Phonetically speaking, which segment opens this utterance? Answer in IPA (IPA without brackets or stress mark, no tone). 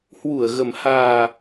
h